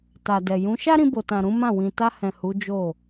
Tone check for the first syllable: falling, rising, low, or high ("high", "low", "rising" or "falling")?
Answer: low